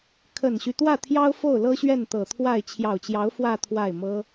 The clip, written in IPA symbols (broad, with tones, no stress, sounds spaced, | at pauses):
kʰ ə˨˩ n ɕ y˦ t̪ w ä˥˩ t̪ʰ j ɑ˥ ʊ̯ f o˥˩ ʊ̯ l ɤ˥ ɕ ɥ ɛ˥˩ n t̪ ɤ˨˩ t̪ʰ w a˥˩ ɪ̯ t͡ɕʰ j ɑ˨˩ ʊ̯ t͡ɕ j ɑ˧˥ ʊ̯ f w ä˥˧ t̪ʰ w a˥˩ ɪ̯ m ɤ˥